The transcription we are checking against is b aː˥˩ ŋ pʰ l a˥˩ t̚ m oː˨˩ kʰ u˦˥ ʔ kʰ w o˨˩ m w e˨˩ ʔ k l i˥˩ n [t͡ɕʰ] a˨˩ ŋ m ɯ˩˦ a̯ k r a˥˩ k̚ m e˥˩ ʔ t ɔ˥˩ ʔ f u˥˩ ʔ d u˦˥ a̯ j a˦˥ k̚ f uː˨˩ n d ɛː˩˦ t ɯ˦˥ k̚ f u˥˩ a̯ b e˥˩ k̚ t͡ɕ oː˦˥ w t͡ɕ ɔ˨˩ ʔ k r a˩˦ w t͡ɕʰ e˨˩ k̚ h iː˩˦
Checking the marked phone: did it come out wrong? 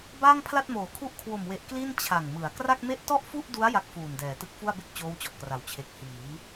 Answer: no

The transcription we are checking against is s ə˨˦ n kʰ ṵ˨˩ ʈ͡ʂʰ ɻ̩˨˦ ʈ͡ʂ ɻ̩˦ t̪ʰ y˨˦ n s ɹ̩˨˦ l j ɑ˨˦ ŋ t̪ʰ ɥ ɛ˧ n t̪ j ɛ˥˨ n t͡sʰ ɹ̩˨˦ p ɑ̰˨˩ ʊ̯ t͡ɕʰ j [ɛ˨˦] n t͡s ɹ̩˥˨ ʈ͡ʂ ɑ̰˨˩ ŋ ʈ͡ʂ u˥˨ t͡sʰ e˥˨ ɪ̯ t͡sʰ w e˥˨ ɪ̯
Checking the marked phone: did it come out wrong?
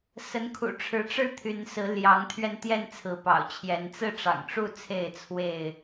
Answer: no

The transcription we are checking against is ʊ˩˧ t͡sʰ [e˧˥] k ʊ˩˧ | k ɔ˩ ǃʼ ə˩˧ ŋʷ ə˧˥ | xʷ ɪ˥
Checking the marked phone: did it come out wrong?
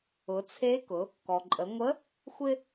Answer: no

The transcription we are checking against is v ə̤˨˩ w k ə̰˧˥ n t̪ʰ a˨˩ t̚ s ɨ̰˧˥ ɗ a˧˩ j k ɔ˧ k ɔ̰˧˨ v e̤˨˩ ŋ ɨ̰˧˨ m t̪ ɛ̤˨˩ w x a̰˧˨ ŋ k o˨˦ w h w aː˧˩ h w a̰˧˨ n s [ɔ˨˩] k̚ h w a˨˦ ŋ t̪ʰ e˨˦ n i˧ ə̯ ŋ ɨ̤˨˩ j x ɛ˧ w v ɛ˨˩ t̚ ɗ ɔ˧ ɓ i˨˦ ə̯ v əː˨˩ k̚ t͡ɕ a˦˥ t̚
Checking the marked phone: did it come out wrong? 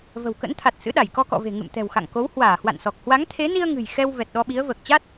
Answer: no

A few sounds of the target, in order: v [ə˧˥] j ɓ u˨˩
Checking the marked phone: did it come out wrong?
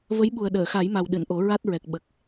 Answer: no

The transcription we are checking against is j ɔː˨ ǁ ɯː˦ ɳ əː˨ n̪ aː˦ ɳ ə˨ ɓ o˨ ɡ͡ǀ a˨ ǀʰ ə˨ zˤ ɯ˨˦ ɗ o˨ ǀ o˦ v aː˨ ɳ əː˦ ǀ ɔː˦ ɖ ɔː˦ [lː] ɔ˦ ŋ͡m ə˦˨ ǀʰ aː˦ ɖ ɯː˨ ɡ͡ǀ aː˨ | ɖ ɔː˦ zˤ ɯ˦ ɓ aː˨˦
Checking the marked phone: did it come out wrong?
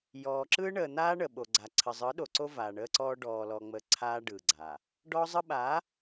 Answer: yes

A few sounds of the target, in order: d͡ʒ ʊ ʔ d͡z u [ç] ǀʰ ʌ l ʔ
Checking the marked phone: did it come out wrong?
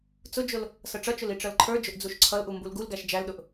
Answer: yes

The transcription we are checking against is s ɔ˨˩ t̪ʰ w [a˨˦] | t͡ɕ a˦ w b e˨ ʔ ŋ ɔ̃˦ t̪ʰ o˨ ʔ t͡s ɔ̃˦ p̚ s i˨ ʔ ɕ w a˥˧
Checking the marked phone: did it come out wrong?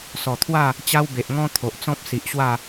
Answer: yes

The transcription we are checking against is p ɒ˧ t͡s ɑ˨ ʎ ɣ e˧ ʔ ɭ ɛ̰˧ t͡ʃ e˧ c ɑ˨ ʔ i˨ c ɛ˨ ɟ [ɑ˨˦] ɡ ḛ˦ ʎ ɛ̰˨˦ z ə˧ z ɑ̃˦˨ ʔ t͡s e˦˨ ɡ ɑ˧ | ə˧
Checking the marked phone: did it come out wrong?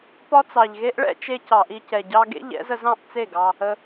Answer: yes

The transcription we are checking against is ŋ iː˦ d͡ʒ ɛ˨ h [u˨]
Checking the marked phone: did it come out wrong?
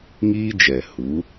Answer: yes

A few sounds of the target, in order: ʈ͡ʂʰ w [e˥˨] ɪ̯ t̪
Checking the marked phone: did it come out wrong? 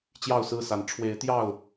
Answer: yes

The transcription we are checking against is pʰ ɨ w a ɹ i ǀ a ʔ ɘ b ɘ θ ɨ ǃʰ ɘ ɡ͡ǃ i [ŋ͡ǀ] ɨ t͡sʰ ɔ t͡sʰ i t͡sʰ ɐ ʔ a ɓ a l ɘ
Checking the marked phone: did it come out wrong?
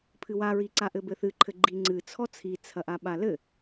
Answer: no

